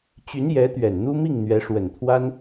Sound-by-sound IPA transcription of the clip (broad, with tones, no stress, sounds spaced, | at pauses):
t͡ɕ y˧˥ n j ɛ˧˥ t̪ ɥ ɛ˨˩ n n̪ u˥ m i˥˩ ŋ n̪ ɥ ɛ˧˥ ʂ w ə˨˩ n t̪ʰ w a˥ n